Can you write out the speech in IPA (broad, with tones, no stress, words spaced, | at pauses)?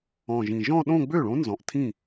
ɔ̃˨˩ʒĩ˨˩ʒɔ̃˥˧ɗõ˥˧ ɡ͡bø˥˩ɭõ˧˥ nzɔ̃˨˩ʔtʰĩ˥˩